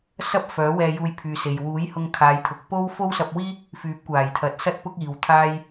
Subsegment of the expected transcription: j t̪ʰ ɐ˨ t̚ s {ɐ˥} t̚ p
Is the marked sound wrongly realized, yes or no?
no